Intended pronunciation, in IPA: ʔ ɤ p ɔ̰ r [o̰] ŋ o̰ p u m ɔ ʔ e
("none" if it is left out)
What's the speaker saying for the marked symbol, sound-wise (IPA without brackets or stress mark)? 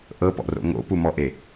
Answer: o̰